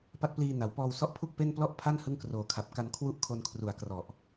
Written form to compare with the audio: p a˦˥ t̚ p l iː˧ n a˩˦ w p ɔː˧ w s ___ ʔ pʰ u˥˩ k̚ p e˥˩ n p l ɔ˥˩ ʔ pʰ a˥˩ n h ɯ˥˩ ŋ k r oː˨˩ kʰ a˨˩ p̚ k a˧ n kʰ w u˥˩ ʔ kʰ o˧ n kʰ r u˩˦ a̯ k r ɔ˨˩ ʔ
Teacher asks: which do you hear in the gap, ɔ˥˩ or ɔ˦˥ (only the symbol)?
ɔ˦˥